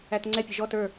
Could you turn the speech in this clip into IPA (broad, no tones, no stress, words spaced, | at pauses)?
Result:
ætŋ͡ǀɛpʲʊ ʒɔt ə˞